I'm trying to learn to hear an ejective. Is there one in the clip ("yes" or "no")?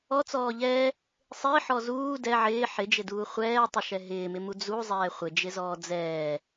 no